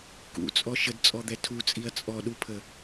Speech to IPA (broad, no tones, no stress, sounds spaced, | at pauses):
k ṵ t͡sʼ ɔ ʃ ə d t͡sʼ ɔ d̪ ɛ tʰ u t͡sʼ i ɐ̯ t͡sʼ ɔ ɗ u pʰ ə